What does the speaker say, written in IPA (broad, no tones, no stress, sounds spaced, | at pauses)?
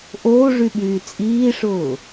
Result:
ʔ oː ʐ y ɓ yː t͡sʼ iː ʂ ʊː